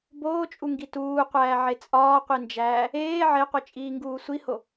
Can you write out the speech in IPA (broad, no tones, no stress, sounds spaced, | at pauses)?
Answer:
b oː t͡ʃʼ u ŋ ɡ i t uː qʷ æː ʕ e t͡sʼ ɒː qʷ i n d͡ʒ æː | eː ʕ e qʷ i t͡ʃʼ iː ŋ ɡ uː sʷ i h o